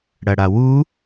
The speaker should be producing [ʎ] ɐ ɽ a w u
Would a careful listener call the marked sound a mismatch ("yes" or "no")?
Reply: yes